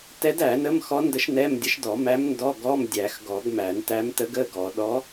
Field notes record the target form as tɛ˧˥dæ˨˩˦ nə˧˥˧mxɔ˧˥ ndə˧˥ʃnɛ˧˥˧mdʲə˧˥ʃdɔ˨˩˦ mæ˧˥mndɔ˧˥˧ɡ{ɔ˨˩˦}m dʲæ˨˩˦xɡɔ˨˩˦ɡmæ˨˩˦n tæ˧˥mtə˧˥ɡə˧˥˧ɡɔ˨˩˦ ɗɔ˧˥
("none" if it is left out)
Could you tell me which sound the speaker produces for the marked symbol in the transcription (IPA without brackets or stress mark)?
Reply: ɔ˧˥˧